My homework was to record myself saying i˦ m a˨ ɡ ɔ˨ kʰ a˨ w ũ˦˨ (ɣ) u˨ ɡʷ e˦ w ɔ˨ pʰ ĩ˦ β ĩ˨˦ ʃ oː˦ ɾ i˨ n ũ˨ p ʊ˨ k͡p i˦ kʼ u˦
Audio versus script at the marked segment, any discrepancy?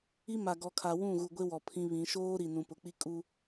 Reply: no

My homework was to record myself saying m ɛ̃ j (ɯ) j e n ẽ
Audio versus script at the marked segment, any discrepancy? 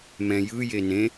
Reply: no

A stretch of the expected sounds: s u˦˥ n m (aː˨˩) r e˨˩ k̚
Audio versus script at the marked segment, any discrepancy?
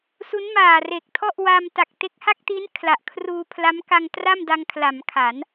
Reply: no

